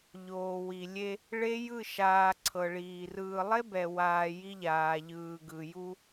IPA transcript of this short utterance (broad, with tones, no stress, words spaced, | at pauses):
ʎoː˨wi˨lʲe˦ | ɭe˦jɯ˦˨ʃaː˨ ǀʰɤ˨ɭiː˨ rɯː˨lˠe˦bɛ˨waː˨ ji˦ʎaː˨ʎɯː˨ ɡɯ˨ju˦